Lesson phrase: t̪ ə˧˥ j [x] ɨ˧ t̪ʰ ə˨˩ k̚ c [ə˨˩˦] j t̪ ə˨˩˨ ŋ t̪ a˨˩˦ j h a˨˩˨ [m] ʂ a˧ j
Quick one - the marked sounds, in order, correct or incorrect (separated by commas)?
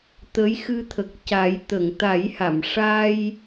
correct, incorrect, correct